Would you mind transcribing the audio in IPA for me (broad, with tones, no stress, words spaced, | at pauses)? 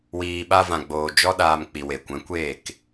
wiː˨ɓa˧vã˨ɡ͡boː˨ d͡ʒɔ˦ɗaː˧m k͡pi˨we˨kʷɛ̃˨˦kʷeː˦˨k